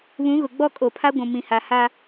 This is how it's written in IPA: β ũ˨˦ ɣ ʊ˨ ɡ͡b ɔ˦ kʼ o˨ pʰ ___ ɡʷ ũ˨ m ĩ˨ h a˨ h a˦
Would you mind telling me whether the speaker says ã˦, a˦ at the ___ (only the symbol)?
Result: a˦